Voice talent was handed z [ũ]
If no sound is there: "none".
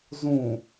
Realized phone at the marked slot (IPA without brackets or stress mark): ũ